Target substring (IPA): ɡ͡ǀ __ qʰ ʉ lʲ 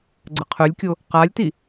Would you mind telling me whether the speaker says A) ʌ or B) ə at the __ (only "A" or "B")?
B